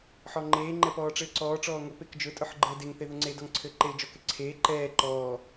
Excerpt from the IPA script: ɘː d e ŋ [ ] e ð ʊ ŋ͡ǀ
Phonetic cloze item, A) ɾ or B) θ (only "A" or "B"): B